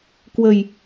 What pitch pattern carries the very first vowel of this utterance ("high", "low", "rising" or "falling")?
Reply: low